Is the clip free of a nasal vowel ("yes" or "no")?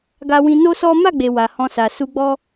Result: no